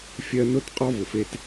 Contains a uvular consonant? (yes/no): yes